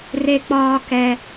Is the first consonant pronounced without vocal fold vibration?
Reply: no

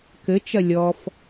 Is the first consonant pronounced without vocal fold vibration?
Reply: yes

